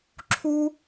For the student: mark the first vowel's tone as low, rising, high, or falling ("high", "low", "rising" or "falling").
high